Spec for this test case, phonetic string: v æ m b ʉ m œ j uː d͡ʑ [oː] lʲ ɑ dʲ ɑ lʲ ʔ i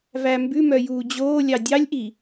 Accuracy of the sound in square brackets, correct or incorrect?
correct